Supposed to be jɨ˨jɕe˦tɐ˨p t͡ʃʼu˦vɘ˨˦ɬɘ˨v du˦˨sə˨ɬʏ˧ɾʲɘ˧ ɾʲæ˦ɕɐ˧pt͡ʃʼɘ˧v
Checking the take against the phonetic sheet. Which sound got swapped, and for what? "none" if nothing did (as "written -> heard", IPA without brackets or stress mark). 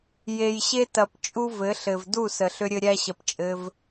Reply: ɨ˨ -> e˨